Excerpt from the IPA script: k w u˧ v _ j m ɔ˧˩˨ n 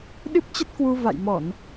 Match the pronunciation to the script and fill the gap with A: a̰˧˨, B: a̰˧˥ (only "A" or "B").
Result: A